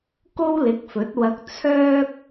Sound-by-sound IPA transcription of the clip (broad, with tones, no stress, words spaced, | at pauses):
ko˥wlɪ˨˥k̚fɵ˨˥t̚wɐ˧k̚ t͡sʰœː˥k̚